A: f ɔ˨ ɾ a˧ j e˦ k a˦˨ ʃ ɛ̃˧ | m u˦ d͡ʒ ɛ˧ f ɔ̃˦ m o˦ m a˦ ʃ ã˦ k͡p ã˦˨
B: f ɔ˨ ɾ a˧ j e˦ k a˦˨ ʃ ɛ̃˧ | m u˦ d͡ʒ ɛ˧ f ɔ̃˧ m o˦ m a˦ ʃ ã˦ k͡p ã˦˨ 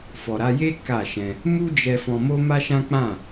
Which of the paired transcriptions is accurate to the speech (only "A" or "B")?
B